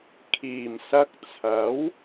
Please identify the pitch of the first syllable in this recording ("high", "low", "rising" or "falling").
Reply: low